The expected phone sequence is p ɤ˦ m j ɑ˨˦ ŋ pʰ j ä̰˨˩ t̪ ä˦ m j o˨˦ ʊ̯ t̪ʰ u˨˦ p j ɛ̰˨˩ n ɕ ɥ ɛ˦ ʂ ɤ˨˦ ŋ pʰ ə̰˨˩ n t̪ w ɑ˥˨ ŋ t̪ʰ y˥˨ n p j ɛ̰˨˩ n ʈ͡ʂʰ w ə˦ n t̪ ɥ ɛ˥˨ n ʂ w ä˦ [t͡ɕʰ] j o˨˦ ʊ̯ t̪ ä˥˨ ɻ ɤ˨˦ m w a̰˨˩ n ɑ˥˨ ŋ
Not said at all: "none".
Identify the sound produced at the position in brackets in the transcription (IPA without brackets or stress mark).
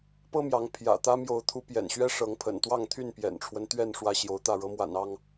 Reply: ɕ